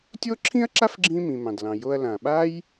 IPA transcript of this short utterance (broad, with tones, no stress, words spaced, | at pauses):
tʲo˥ǁʰĩ˥ɐ̯ǁa˥fɡ͡ǁĩ˧ mĩ˩mɑ̃˩dlɑ̃˩ jo˧ɐ̯lã˩ ɓa˥j